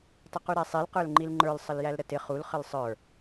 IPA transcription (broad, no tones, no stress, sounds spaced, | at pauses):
tˤ ə q u ɾ æ sˤ i l q ə˞ l ŋ͡ǃ i l ŋ͡ǃ ə˞ l sˤ ə l j æ l ɾ ə t ɪ χ u l χ ə l sˤ ə˞